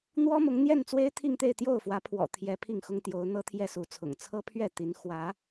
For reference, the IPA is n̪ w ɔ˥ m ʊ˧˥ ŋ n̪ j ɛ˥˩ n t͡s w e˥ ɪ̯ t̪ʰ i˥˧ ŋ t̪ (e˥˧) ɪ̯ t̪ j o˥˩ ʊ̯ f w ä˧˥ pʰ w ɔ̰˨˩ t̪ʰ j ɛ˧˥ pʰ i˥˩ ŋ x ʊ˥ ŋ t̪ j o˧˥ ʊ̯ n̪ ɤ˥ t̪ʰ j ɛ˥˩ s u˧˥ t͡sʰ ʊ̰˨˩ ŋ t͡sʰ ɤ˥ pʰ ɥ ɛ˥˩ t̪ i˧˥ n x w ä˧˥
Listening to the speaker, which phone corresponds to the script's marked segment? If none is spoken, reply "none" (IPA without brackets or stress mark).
e˥˧